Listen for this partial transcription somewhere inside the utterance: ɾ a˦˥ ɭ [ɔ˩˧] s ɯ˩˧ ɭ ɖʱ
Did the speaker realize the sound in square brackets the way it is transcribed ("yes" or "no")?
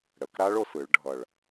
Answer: no